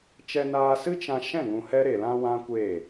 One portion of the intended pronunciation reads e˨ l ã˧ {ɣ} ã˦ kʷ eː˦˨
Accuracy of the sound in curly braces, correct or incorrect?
incorrect